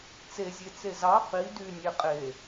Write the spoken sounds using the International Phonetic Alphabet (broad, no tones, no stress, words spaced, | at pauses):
t͡sezʲet͡se zɑ qi dynʲe qʼe